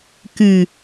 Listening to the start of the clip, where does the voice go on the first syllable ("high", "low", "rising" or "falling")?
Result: low